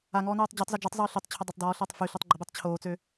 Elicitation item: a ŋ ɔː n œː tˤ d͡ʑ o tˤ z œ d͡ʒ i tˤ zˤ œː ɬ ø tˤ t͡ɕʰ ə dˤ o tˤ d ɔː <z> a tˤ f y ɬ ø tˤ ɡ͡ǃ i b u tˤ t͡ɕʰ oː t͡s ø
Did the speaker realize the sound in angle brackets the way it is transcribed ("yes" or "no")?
no